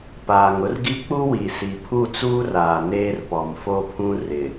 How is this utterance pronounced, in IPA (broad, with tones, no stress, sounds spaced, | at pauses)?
p aː˨ ŋ ʊ˦ r ɡ i˦ k͡p u˦ w i˨ s i˨ pʰ u˦˨ t͡s uː˦ r aː˨ n eː˦ r p ɔ˨ m f o˦ pʰ ũ˦ r ɪ˨